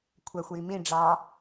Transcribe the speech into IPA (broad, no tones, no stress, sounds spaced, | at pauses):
kʷʰ æ xʷ j i m ĩ ɖ͡ʐ ɑ